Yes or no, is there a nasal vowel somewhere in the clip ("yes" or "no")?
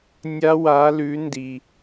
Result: no